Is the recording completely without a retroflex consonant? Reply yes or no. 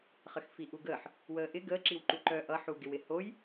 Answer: yes